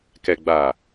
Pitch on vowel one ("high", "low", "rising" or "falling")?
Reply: low